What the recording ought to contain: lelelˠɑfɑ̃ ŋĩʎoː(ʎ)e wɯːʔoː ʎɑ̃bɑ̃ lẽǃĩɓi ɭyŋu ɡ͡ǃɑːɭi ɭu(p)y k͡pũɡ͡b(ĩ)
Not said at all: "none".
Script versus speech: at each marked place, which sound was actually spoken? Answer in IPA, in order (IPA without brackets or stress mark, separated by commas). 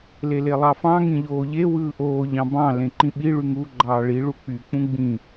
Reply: ʎ, k͡p, ĩ